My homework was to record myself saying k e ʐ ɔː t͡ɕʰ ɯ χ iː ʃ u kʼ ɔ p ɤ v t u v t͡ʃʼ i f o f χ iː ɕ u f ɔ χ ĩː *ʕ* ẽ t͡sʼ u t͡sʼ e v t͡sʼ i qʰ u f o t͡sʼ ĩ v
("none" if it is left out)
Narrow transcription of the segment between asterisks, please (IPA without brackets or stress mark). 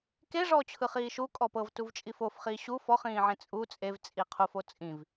ʕ